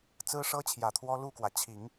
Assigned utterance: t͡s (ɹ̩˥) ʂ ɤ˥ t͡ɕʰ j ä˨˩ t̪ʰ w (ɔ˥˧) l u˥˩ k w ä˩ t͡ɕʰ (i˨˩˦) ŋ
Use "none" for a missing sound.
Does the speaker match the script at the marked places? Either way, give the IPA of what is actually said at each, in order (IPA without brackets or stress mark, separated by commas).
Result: ɹ̩˥, ɔ˥, i˨˩˦